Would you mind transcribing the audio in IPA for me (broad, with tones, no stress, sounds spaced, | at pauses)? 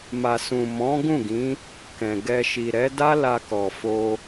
m a˨ s ũ˨ m ɔ̃˨˦ ɡ ũ˦˨ ɡ ĩ˨˦ | k ɛ̃˨ ɡ ɛ˧ ʃ i˨ ɾ ɛ˨˦ d a˦ l a˧ k ɔ˨ f o˧